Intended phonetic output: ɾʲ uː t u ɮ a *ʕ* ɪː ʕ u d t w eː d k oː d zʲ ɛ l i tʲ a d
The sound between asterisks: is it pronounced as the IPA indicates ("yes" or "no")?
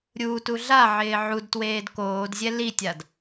yes